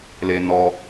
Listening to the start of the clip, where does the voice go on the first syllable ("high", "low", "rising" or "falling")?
high